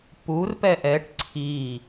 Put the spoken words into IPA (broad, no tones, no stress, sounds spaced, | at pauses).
p u r p ɛ ʔ ɛ ʈ ǀʰ i